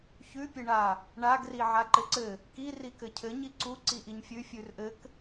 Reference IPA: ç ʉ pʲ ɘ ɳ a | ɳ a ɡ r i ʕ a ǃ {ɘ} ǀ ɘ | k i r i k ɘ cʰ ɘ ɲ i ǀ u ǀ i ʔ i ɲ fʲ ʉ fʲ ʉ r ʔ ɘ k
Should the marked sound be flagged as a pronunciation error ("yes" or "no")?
no